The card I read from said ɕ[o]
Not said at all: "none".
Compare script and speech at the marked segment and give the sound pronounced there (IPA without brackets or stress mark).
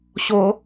o